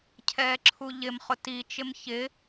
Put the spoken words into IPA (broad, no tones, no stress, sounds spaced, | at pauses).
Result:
cʰ ɛː ǁʰ u ʎ ɪ m χ ʊ t i t͡ʃ ɪ m ç ɪ